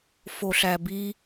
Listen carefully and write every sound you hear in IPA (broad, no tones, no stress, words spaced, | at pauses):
foɬæbi